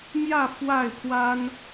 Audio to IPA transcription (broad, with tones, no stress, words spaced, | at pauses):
mjä˥˨ fwa˥˨ɪ̯pʰwa˦n